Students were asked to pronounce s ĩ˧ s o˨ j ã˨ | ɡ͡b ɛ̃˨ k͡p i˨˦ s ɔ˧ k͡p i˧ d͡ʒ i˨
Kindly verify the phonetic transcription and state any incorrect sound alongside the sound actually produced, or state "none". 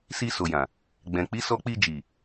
ĩ˧ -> i˧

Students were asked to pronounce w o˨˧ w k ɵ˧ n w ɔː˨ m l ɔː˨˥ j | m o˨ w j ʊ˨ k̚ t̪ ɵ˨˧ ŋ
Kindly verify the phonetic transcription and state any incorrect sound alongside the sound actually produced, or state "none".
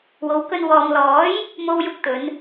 ŋ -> n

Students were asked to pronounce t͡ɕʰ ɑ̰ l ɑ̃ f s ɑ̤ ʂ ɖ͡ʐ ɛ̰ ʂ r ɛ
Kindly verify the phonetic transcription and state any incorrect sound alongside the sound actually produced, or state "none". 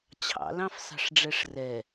ɛ̰ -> ɛ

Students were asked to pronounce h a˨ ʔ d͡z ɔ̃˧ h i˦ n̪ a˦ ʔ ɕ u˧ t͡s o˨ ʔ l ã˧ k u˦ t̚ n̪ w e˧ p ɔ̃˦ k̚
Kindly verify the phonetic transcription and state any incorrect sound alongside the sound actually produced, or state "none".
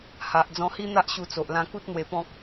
none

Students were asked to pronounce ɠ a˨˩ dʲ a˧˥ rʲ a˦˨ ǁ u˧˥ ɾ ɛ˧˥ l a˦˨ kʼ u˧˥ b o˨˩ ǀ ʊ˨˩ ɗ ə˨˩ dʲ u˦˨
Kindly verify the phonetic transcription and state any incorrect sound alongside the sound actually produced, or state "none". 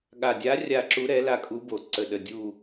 ʊ˨˩ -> ə˨˩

